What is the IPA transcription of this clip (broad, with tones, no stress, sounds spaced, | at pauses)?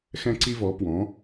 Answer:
x ɛ̃˥ ǀ i˥ v ɔ˩˥ p w ɔ̃˩˥